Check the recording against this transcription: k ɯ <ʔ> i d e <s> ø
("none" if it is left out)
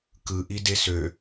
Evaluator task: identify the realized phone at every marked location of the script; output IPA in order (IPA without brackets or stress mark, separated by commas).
ʔ, s